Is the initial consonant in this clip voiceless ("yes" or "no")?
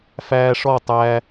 yes